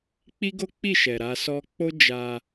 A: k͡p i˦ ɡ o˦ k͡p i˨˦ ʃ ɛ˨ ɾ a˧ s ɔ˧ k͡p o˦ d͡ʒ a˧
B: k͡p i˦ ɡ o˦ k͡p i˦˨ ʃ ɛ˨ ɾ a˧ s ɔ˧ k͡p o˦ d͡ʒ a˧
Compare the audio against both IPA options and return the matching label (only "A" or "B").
B